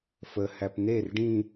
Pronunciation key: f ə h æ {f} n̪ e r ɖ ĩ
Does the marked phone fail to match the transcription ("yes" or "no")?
yes